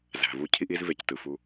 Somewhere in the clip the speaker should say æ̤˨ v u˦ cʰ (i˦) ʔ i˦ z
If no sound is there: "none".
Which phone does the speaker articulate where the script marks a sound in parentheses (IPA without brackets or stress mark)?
i˦